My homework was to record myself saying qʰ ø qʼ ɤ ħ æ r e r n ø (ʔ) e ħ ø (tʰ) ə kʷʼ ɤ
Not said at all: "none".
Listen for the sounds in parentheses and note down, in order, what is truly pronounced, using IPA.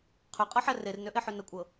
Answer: ʔ, n

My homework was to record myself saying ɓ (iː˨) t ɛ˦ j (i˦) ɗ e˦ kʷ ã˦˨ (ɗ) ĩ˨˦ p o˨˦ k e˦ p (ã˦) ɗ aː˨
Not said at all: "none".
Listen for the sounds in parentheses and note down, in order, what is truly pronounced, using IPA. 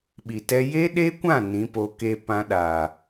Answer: i˨, e˦, n, ã˦

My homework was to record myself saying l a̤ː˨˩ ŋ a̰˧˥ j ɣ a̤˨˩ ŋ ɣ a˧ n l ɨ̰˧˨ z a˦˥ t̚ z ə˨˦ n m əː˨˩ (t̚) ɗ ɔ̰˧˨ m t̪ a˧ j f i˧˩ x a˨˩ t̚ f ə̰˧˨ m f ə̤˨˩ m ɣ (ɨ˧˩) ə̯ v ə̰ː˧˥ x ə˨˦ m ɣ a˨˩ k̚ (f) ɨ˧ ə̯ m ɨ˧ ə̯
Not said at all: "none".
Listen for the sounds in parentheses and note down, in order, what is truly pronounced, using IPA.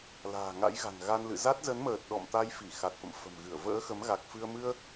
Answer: t̚, ɨ˧˩, f

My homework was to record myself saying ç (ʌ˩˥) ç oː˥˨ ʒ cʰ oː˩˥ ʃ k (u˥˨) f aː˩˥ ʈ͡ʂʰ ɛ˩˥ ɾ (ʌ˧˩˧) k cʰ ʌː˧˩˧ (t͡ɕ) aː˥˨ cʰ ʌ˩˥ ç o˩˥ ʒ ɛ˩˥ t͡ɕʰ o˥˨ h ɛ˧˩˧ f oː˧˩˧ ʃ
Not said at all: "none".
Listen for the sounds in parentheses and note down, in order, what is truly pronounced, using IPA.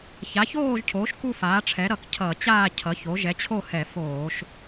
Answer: a˩˥, u˥˨, ʌ˧˩˧, t͡ɕ

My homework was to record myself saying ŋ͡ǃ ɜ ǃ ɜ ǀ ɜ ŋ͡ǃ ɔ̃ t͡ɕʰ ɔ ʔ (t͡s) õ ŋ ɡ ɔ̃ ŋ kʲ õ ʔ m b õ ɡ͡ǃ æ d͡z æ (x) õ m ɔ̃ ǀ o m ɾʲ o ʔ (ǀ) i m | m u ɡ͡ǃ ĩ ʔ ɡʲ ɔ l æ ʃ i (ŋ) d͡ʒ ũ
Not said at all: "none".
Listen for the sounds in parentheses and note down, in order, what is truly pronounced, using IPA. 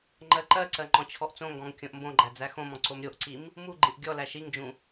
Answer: t͡s, x, ǀ, ŋ

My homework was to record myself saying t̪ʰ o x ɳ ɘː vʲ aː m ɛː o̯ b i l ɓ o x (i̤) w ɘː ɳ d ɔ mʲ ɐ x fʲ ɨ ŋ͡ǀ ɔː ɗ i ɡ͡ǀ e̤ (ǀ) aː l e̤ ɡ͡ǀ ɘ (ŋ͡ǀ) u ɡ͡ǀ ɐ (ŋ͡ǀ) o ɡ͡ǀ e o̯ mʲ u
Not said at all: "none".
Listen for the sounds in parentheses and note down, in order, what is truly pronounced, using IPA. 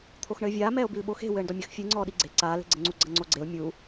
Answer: e̤, ǀ, ŋ͡ǀ, ŋ͡ǀ

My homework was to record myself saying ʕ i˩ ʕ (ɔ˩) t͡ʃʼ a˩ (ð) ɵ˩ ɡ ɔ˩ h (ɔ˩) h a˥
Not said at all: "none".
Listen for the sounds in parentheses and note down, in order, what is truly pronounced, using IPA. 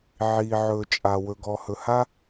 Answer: ɵ˩, w, ɵ˩

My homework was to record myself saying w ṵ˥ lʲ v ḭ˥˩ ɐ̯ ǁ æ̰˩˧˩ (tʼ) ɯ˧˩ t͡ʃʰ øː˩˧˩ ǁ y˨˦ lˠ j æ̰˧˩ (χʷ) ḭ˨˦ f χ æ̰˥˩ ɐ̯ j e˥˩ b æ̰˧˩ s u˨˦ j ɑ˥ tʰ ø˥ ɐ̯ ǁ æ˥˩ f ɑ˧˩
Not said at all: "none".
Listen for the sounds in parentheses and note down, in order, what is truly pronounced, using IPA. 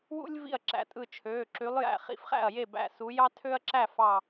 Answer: tʼ, χ

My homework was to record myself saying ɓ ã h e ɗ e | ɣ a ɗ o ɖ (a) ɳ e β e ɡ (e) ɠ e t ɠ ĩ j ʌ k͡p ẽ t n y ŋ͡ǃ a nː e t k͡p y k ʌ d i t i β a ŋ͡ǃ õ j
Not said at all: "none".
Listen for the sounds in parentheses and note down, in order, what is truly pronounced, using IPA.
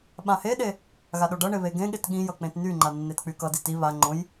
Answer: ʌ, ẽ

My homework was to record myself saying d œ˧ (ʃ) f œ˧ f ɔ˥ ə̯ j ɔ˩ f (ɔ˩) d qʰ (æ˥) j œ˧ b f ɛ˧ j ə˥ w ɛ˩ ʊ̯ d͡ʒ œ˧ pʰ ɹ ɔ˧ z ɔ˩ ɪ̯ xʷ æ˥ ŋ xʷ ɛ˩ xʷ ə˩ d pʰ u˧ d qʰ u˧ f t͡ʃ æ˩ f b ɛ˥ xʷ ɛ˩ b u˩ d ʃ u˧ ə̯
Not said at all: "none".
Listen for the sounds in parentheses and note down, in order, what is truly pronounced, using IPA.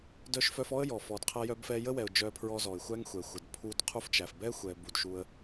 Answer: ʃ, ɔ˩, æ˧

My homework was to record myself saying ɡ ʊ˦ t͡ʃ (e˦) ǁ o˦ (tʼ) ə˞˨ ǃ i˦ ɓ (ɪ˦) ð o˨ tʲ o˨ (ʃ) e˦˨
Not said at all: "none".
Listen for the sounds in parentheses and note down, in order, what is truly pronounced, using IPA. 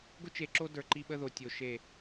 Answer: e˨, d, ə˦, ʃ

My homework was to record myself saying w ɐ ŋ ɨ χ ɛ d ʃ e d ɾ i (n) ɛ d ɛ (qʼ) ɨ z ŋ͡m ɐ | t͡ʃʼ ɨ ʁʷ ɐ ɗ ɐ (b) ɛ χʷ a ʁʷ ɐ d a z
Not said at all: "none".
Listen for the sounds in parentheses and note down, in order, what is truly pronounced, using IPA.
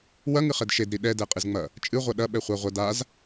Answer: ɗ, qʼ, ɓ

